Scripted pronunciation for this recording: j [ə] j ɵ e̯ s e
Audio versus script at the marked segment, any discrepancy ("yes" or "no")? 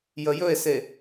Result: no